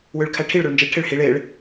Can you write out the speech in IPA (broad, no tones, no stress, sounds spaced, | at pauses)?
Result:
w ø ɭ kʰ æ ʈʰ i ɭ ɾ o ɭ n d͡ʒ e ɭ ʈʰ e ɭ h i ɭ e ɭ